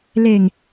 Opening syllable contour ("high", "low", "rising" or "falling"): low